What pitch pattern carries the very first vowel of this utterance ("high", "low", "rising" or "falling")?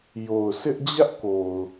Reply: low